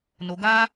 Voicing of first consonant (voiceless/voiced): voiced